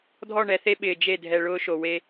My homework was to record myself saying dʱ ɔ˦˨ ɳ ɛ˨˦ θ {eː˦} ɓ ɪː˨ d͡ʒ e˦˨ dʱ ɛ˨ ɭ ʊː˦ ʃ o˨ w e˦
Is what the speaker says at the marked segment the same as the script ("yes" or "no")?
no